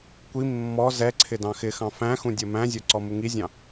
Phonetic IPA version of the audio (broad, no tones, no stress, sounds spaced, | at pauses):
kʷ i mː ɔ z ɛ ǀʰ ɪ d ɑ̃ x ɪ x ɑ̃ f æ̃ x ũ dʲ ʌ m æ̃ zʲ ʌ ǀ ɔ m u ŋ i zʲ ɑ̃